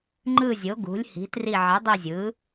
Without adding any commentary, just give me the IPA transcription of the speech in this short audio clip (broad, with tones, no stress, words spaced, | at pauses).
ŋ͡ǃɯ˦˨zʲo˩˥ ɡṳ˩˥lʲhi̤˩˥tri˦˨ ʕi˩˥dˤi˦˨zʲɯ˩˥